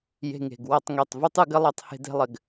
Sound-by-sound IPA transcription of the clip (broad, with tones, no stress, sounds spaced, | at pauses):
j e̤˧ ŋ e̤˨ ɡ w ʌ˦˨ tˤ ŋ e˦˨ tˤ v u˦ tˤ ɯ˦ ɡ ɘ˦ lˠ ɛ˦ tˤ h e̤˦ d e̤˦ lˠ ɘ˧ ɡ